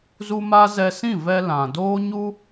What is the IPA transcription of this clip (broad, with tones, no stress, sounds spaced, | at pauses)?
z u˦ m a˦ z ɛ˧ s ĩ˦˨ v ɛ˧ l ã˨ d oː˦ ɲ u˦